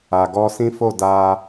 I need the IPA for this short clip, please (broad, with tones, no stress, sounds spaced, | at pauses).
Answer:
a˨ ɡ ɔ˧ s ĩ˦ f o˦˨ d a˧